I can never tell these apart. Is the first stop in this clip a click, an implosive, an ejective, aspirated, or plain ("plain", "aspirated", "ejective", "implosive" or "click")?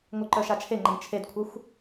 click